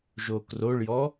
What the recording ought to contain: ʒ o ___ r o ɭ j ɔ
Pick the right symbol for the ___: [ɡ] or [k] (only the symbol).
k